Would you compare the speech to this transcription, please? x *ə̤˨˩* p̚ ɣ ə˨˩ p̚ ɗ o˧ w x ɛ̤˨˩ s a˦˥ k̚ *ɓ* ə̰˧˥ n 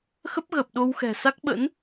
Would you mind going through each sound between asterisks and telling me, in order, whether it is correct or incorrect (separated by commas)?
incorrect, correct